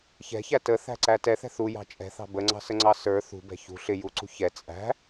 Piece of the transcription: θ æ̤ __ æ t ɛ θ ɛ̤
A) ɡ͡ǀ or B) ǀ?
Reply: B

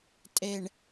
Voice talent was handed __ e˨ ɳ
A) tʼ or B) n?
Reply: A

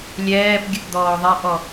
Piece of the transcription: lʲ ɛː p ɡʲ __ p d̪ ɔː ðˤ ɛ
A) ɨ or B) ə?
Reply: B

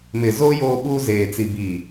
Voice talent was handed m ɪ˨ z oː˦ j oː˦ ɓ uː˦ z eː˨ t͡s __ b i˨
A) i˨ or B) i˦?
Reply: A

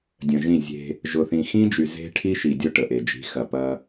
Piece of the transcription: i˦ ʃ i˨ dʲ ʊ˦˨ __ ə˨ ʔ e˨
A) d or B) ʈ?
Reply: B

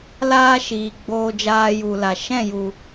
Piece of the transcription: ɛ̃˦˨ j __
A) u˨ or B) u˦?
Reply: A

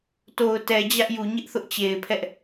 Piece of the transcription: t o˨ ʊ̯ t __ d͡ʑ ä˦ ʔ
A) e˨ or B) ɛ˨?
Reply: B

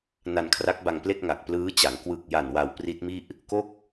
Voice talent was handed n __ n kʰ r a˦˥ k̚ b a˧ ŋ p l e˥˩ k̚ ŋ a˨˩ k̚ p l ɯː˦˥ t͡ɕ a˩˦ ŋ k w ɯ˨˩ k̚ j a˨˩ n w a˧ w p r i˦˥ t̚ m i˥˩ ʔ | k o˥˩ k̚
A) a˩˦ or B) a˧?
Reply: B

